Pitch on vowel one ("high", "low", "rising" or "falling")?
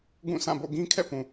falling